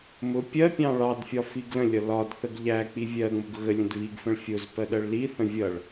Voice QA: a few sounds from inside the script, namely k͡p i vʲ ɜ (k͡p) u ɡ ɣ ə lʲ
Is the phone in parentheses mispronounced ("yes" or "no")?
yes